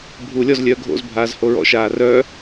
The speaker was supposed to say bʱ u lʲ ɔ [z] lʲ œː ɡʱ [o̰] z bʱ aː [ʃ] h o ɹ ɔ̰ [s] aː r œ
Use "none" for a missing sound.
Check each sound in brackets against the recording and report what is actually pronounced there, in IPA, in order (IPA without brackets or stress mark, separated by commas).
z, o̰, z, ʃ